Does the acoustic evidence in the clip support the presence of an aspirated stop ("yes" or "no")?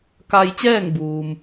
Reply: no